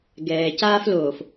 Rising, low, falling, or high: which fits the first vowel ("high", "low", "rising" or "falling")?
low